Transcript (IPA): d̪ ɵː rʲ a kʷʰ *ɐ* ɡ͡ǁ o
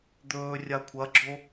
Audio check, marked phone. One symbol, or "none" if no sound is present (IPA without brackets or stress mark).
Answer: ɐ